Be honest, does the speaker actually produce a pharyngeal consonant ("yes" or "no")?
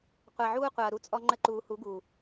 yes